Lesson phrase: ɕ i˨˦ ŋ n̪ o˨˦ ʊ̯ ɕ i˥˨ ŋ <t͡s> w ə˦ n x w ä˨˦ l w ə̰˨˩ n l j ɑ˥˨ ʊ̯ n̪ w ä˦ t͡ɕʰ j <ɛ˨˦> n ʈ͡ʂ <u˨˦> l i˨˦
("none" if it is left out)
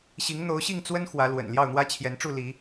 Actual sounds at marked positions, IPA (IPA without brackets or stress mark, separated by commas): t͡s, ɛ˨˦, u˥˨